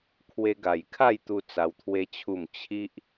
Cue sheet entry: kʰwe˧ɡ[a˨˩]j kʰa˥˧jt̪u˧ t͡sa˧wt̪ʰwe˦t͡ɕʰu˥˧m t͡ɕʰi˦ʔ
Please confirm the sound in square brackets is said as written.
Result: yes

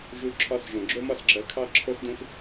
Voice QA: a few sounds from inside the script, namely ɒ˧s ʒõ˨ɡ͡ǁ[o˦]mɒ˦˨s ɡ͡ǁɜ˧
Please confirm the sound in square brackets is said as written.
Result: yes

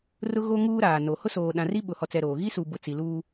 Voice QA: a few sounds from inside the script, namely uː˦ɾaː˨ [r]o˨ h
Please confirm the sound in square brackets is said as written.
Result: no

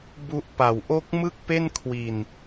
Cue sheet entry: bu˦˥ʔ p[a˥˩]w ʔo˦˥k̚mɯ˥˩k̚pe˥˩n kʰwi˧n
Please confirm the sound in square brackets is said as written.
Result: no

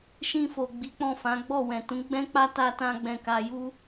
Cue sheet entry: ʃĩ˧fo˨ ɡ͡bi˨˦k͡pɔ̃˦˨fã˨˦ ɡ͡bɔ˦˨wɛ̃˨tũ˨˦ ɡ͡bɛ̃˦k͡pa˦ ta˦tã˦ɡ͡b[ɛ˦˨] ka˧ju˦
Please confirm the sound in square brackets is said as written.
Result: no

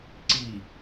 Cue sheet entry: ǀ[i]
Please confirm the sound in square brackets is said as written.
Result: yes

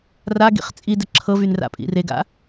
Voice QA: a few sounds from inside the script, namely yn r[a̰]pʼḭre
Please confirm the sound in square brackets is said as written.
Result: yes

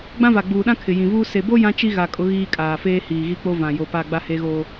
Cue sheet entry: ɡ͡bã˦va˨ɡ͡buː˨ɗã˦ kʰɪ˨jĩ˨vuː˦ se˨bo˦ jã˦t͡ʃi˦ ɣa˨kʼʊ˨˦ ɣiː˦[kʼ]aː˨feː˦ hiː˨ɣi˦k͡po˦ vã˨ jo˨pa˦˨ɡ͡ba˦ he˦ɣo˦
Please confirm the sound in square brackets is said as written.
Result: yes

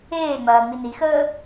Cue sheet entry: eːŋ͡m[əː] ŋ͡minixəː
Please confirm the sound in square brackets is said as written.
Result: no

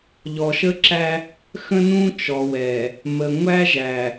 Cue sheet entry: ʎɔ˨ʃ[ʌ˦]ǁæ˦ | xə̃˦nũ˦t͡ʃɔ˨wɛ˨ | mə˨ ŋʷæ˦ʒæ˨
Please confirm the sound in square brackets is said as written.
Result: no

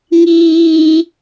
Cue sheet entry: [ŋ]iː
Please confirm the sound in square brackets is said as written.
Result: yes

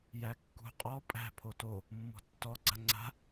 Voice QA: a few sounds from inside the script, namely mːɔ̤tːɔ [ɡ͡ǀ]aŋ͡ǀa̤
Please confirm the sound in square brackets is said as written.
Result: yes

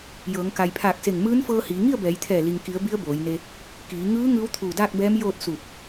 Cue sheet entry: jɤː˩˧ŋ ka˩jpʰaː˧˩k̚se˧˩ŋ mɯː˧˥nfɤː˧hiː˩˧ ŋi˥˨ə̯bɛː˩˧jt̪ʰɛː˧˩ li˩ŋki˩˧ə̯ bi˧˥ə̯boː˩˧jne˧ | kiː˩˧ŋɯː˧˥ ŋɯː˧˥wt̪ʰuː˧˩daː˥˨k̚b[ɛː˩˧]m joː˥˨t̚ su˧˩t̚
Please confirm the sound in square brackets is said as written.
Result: no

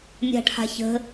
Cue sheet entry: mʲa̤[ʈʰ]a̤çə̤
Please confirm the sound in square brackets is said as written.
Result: yes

